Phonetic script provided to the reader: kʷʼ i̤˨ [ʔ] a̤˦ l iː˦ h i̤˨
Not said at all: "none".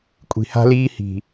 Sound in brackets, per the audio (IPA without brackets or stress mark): h